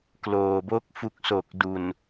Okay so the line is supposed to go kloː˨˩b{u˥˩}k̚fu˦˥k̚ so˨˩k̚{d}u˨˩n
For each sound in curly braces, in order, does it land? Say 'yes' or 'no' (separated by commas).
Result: no, yes